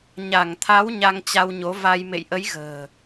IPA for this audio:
ɲ a˧˩ ŋ t̪ʰ a˨˦ w ɲ a˧ ŋ t͡ɕ a˧ w ɲ o˨˦ v a˧ j m ḛ˧˨ j ʔ ə˨˦ j ɣ ə̤ː˨˩

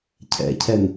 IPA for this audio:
cʰ ɛ̰ cʰ ɛ n

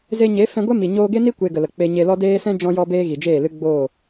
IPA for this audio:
z e˧ ɲ e˨˦ f ɛ̃˧ ɡʷ ɛ˦ m i˨ ɲ oː˧ ɡ e˦ n i˦ kʷ e˧ ɡ ə˨ l ə˨ k͡p e˧ ɲ e˧ l ɔ˦ d eː˦ s ɛ̃˦ d͡ʒ ɔ̃˧ j ɔ˧ b eː˦ ɣ i˨ d͡ʒ eː˦˨ l ɨ˦ ɡ͡b oː˦˨

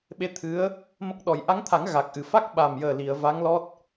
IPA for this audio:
ɓ e˧ t̪ʰ ɨ˧˥ ə̯ | m ə˦˥ k̚ ɗ ɔ˨˩˦ j ʔ a˧˥ ŋ t̪ʰ a˨˩˦ ŋ ɣ a˨˩ k̚ ʔ ɨ˨˩˨ f a˦˥ k̚ ɓ a˨˩ m j əː˨˩ l i˨˩˨ ə̯ v a˧˥ ŋ l ɔ˦˥ t̚

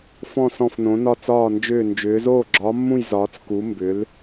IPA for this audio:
f ɔ̃˥˧ s ɔ̃˥˧ f n õ˧˥ n ɒ˥˧ t͡s ɒː˥˧ n d͡ʒ ʏː˥˧ n d͡ʒ ʏː˧˥ z oː˥˧ ɡ͡ǁ ɒː˧˥ mː ũ˥˧ j z ɒː˧˥ t͡s k u˧˥ m b ʏ˧˥ l

